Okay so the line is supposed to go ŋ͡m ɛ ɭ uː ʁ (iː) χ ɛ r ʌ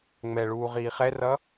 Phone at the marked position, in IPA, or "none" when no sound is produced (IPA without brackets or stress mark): iː